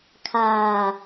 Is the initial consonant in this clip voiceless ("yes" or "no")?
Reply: yes